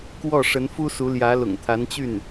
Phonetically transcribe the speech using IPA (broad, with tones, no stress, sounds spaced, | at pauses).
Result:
k w ɔ˥˩ ʂ ə˧˥ n f u˥ s u˧˥ l j ä˧˥ l ʊ̰˨˩ ŋ t̪ʰ a˧˥ n t͡ɕ y˥˩ n